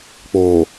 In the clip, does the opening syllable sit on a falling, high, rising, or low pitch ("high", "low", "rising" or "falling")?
low